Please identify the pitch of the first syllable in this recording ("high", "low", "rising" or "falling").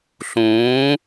rising